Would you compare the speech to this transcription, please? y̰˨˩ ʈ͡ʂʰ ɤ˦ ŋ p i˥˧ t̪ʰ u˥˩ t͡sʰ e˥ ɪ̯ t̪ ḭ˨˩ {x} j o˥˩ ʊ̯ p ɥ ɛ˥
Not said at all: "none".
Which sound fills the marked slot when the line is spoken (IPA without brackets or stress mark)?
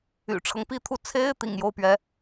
ŋ